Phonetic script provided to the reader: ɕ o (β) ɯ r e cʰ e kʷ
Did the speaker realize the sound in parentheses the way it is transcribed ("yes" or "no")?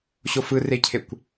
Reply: no